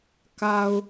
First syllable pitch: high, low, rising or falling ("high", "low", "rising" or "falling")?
low